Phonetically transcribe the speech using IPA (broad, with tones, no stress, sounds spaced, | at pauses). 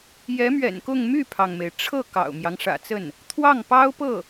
j ɛ˧˥ m ɥ ɛ̰˨˩ n k ʊ˥˧ ŋ m y˥˩ pʰ ɑ˩ ŋ m e˩ ɪ̯ ʈ͡ʂʰ ɤ˥˩ k ɑ̰˨˩ ʊ̯ m j ɑ˦ ŋ ʂ ä̰˨˩ t͡s ə˥˩ n | t̪ʰ w ɑ˥˩ ŋ p ɑ˥ ʊ̯ p ɤ˥˩